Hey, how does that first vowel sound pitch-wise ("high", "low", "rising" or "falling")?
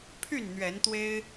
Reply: falling